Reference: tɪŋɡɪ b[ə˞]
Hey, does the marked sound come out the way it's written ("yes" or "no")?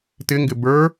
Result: yes